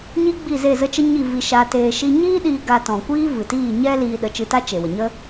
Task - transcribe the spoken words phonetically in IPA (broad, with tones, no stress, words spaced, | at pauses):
ɲi˦ɡ͡bi˦˨ze˦˨ zə˦t͡ʃə˦ ɲi˦˨ vi˧ʃa˧teː˧ ʃi˧ɲiː˦ɗiː˧ ɡa˧ tɔ̃˨kʷiː˦ vɨ˨tiː˦˨ɲɛ˦ liː˧ɗə˨˦t͡ʃɨ˧ta˦ t͡ʃe˨wə˨ɲə˦